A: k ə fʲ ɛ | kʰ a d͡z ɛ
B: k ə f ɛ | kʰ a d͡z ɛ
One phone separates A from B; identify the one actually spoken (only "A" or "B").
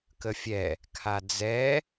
A